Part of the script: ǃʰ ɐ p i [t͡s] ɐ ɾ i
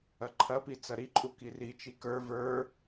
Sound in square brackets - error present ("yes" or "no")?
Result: no